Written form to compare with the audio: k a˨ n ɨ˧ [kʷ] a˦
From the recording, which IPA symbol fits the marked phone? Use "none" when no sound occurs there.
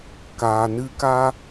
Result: k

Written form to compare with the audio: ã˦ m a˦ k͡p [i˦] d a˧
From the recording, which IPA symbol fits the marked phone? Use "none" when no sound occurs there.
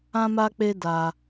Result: e˦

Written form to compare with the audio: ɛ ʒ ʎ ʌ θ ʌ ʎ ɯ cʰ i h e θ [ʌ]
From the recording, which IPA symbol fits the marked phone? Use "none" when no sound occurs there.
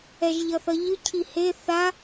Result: a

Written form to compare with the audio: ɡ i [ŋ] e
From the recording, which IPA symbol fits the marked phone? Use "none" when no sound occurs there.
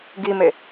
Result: m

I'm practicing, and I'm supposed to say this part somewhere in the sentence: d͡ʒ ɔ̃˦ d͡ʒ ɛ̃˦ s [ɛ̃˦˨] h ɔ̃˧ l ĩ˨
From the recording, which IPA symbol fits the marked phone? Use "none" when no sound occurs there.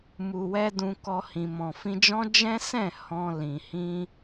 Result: ɛ̃˦˨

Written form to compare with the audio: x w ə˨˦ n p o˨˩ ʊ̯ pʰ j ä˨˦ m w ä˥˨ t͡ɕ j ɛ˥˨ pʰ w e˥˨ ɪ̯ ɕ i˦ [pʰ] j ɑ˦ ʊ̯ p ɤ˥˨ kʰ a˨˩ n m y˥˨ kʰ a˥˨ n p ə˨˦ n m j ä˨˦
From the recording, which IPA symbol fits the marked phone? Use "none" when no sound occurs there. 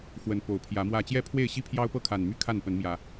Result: pʰ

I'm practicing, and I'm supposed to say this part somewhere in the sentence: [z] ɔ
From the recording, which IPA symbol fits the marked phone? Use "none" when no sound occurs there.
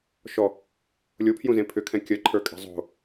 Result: ʃ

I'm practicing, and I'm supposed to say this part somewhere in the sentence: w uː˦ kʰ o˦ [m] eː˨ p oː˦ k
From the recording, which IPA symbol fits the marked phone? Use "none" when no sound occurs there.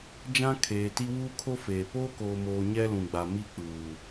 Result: f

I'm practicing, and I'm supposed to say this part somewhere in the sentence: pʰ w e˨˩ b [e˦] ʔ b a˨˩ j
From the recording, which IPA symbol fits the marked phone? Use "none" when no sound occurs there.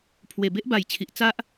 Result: e˦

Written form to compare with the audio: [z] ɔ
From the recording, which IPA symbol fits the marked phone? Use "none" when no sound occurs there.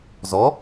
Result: z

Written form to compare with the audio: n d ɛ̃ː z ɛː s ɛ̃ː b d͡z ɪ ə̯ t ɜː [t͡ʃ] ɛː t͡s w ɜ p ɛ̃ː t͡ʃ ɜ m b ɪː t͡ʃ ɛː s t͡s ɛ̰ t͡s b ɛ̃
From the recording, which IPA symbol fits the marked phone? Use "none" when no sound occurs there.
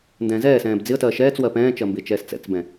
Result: ʃ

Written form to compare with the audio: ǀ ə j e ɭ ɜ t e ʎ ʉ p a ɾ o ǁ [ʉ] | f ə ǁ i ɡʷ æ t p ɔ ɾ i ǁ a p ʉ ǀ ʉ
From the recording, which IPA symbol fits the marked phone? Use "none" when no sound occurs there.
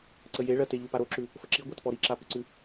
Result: ʉ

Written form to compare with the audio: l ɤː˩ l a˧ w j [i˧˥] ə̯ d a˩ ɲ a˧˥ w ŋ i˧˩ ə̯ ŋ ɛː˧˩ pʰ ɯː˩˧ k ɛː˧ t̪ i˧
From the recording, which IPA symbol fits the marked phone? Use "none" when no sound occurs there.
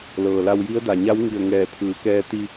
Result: i˧˥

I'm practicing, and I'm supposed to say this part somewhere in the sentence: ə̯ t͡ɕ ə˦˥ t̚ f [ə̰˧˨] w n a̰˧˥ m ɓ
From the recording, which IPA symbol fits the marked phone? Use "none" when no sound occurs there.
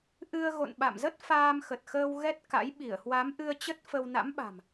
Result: ə˧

